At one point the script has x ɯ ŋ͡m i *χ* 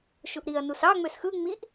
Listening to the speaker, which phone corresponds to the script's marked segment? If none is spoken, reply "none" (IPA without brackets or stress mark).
ʔ